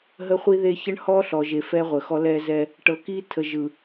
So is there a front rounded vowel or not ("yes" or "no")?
no